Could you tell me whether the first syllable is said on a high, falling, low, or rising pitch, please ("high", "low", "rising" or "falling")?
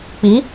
rising